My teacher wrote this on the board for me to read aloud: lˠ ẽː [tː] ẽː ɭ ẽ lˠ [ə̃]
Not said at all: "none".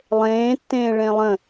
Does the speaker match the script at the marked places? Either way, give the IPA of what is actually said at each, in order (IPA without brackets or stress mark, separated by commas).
tː, ə̃